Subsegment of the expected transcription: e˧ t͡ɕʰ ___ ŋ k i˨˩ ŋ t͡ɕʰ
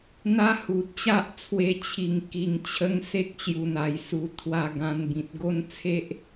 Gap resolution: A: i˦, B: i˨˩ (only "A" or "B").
B